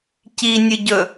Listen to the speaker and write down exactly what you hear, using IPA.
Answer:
cinʲɨɟɵ

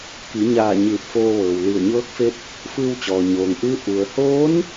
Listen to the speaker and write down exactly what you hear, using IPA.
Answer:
ki˩˧ɲaː˧˩ ɲɯː˧˩p̚foː˧ʋɤː˩w li˧˩ə̯ɲɤː˧˥k̚fe˧˥p̚ | fɯː˧wt͡ɕɔː˩ ɲoː˩ŋʔɯː˧˥ ʔu˩ə̯hoː˧˥n

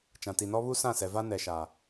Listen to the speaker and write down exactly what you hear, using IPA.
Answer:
t͡ʃã˨ti˨nɔ˦ βu˦sã˦˨sɛ˨ va˦nɛ˨ʃa˨

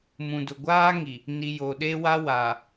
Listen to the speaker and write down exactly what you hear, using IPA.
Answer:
mũ˨dʊ˨ɡʷaː˦ŋi˨ | ni˨ jo˨ɗe˦wa˦ wa˨

